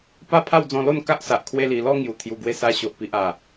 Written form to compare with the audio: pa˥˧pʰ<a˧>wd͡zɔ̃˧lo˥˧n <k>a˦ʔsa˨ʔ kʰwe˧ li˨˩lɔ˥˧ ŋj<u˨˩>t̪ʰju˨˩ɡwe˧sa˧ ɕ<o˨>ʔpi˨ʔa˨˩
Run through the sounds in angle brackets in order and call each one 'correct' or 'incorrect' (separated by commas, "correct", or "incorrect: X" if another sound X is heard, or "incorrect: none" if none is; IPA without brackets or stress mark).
incorrect: a˥˧, correct, correct, correct